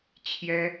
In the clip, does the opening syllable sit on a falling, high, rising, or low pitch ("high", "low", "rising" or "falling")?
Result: high